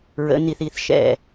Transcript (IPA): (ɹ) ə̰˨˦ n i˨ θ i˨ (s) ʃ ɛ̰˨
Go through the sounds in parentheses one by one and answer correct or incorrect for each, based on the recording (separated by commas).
correct, incorrect